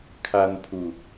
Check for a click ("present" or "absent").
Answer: absent